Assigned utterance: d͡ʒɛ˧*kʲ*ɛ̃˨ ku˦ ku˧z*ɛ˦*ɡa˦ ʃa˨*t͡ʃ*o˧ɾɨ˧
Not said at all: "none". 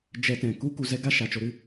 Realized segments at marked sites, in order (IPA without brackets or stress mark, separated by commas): t, ɛ˦, t͡ʃ